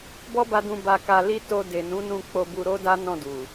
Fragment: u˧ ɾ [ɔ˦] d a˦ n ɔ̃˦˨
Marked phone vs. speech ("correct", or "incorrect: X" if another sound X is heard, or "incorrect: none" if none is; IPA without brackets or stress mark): incorrect: o˦